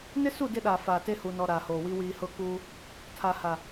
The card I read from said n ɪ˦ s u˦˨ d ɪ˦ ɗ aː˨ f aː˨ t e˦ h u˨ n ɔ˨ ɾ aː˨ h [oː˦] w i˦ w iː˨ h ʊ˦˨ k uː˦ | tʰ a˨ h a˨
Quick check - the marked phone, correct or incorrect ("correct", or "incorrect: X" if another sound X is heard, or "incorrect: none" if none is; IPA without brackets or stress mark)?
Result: incorrect: oː˨